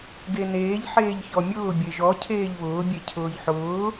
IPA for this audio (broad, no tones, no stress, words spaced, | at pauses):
ɡeneːʎ ħeːʎçɔmʲʊː bʲeʒɔ cʰeːʎβʊː bʲecʰʊːʎħʊː